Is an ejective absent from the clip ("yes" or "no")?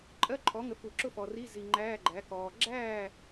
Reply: no